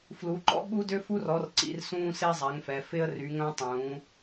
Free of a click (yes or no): no